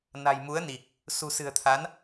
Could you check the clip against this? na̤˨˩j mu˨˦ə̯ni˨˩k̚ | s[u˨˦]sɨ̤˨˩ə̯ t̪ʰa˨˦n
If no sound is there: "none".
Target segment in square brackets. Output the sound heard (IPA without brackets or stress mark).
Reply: ṳ˨˩